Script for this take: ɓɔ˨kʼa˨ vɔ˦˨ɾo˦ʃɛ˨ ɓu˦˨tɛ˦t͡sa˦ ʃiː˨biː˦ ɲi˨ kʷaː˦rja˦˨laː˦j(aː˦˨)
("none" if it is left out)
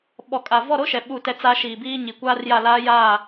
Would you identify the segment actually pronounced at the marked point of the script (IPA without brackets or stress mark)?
aː˦˨